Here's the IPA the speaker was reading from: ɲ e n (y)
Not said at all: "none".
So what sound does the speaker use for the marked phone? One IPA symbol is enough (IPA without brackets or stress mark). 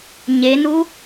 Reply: u